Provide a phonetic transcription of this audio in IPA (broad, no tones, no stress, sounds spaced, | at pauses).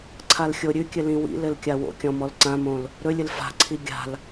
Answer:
ǀʰ a l xʲ o ɾʲ ʉ kʲ ɘ l ĩ w ḭ l ɘ l kʲ a w o̰ kʲ ɔ̃ m ɔ l ǀ ã m õ l | ɾ ɵ lʲ ɘ l f a̤ ǀʰ i ɡʲ a̤ l